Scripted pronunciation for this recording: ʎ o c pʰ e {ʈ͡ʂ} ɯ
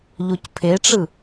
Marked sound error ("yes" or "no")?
no